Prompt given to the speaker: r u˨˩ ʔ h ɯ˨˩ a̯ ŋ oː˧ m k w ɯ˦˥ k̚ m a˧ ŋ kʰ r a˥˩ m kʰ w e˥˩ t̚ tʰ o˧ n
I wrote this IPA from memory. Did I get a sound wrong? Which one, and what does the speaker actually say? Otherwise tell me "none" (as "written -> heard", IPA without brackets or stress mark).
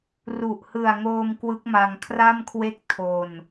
t̚ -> k̚